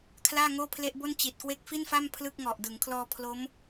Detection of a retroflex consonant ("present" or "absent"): absent